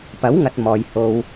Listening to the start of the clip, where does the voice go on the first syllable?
rising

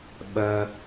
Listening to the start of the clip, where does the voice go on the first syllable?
low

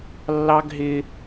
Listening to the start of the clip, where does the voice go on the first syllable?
high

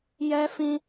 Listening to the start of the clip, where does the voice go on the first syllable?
high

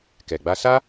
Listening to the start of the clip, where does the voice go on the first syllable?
low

